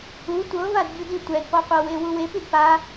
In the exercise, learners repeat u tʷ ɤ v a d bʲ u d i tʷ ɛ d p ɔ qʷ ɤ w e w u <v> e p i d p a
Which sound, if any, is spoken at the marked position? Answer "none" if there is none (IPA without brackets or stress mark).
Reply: w